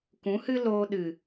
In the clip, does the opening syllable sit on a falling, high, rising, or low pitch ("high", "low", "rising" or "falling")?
rising